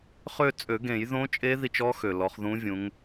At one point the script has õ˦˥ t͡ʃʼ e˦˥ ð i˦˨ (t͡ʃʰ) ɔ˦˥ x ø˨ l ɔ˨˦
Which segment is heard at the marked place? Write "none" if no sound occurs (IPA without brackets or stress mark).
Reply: t͡ʃ